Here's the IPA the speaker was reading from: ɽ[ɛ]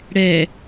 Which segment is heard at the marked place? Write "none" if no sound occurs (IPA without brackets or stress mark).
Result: ɛ